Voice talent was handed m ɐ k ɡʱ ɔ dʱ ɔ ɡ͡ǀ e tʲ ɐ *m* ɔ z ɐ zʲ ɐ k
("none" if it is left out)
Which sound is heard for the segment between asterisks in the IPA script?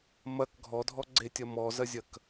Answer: m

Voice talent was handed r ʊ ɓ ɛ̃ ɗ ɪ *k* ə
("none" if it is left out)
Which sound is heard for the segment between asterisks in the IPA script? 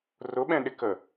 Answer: k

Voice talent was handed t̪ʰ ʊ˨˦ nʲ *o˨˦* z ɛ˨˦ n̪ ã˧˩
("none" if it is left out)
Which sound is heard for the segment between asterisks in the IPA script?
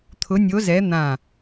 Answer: o˨˦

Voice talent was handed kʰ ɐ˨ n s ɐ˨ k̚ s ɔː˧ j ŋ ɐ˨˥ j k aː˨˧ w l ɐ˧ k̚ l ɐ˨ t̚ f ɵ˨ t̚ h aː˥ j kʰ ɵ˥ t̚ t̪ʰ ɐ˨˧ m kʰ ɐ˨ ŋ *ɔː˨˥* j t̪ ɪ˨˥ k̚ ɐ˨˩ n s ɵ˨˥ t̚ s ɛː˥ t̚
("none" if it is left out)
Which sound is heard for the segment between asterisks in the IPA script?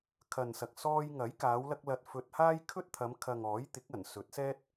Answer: ɔː˨˥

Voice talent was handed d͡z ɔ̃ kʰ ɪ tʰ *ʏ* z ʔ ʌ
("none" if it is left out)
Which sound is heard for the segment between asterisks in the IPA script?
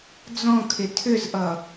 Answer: ʏ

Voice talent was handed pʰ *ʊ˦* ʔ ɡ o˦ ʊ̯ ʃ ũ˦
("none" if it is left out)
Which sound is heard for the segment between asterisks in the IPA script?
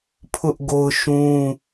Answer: ʊ˦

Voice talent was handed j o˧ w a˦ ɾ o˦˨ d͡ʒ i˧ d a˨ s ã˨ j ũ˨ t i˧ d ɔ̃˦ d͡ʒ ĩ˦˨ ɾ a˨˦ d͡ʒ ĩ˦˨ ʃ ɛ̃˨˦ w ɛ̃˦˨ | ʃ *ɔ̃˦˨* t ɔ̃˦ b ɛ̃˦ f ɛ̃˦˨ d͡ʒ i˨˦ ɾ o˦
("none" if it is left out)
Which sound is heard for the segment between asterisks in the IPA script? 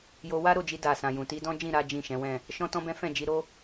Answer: ɔ̃˦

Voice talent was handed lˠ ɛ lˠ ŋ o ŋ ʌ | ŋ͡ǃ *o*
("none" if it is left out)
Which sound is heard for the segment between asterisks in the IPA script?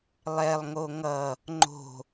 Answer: o̤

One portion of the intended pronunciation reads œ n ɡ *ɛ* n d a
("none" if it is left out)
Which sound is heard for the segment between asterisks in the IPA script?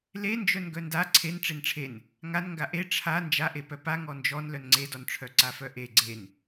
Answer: œ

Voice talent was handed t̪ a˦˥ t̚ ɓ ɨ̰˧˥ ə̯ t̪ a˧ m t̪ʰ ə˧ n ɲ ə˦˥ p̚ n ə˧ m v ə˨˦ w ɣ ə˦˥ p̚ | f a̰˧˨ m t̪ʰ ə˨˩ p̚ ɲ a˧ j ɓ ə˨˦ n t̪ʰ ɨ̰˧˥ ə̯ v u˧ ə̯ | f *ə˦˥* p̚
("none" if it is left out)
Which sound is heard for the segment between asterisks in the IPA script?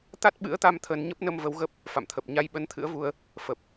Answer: ə˨˩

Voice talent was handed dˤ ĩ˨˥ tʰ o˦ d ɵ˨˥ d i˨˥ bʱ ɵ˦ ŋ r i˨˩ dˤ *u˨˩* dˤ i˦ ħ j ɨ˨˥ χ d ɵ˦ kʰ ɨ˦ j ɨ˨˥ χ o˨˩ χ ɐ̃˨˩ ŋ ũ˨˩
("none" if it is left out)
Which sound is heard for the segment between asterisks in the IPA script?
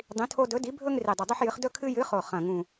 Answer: u˨˩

